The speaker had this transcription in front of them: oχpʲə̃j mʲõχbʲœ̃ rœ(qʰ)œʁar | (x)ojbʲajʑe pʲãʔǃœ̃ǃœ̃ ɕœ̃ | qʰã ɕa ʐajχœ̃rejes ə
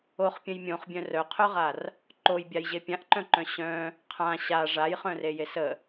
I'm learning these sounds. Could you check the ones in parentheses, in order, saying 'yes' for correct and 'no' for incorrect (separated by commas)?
yes, no